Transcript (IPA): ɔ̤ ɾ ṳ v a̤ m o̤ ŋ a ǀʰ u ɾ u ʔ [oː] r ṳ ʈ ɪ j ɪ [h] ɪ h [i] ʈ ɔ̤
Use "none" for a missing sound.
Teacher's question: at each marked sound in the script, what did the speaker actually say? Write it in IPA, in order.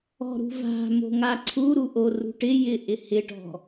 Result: o, ʔ, ɪ

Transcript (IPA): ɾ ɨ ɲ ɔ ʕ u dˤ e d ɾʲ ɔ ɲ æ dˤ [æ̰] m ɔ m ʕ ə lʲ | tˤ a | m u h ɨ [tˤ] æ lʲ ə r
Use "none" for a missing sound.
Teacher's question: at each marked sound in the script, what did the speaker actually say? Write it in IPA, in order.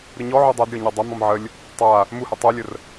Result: æ, tˤ

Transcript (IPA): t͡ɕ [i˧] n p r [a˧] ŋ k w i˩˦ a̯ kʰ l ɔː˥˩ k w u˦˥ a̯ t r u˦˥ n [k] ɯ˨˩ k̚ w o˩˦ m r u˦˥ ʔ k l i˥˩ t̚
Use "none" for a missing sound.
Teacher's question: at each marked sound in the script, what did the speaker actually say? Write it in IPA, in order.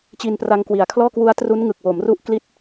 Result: i˧, a˧, ŋ

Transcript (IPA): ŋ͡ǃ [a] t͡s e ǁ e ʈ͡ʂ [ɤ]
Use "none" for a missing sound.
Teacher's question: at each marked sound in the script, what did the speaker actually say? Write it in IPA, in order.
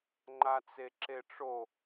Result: a, o

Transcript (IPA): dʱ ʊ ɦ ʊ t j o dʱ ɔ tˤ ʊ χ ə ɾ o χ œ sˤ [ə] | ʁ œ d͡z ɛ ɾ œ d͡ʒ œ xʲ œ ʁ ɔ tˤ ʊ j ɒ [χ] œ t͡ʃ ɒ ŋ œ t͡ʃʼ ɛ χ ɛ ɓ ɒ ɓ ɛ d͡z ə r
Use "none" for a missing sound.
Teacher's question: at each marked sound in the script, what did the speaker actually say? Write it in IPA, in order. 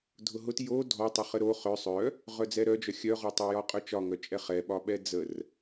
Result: œ, qʼ

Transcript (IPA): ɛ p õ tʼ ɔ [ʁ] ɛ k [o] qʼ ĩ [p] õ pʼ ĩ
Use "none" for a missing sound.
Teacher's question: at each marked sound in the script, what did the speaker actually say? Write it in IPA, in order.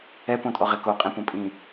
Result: ʁ, o, p

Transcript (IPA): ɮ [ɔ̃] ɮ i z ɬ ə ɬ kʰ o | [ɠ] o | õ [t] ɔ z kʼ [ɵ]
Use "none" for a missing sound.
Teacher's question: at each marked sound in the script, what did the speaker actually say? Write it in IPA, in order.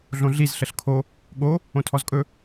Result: õ, ɠ, tʰ, ɵ

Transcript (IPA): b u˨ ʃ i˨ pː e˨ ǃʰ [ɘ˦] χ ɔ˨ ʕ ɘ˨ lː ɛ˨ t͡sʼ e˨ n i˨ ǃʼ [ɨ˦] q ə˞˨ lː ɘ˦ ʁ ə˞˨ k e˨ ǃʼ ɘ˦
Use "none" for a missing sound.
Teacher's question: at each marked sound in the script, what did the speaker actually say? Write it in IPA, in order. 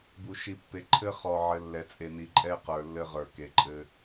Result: ɘ˦, ɛ˦

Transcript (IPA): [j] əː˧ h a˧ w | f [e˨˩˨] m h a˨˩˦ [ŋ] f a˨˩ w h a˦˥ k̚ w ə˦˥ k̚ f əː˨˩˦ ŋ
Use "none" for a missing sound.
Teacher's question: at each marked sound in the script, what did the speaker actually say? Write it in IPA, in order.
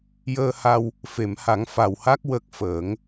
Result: j, e˨˩˨, ŋ

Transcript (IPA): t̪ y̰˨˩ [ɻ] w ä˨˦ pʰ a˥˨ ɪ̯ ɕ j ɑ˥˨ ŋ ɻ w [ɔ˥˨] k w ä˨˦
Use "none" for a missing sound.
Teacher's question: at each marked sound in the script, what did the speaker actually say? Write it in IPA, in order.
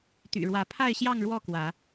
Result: ɻ, ɔ˥˨

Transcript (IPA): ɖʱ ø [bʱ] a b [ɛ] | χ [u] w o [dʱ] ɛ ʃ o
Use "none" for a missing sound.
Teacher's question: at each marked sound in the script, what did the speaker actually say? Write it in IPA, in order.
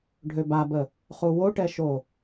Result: b, ə, u, ʈ

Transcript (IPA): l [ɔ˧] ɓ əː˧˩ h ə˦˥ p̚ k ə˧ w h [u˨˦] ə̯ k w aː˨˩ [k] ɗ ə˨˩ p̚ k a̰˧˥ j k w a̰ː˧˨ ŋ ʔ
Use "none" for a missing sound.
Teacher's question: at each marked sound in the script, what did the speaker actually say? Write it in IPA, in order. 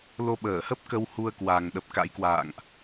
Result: o˧, u˧, ŋ

